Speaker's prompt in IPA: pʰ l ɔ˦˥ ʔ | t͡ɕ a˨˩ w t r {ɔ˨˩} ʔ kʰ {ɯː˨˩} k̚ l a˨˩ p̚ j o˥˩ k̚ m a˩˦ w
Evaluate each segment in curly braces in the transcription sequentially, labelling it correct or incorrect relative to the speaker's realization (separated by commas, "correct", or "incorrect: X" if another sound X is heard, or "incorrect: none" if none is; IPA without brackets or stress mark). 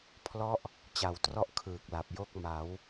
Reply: incorrect: ɔ˥˩, correct